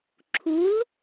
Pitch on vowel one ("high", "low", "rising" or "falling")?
rising